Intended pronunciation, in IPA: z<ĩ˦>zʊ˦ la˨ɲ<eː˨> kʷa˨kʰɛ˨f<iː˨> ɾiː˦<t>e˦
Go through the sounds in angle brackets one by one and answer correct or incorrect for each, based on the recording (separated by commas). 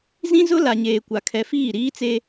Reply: correct, correct, incorrect, incorrect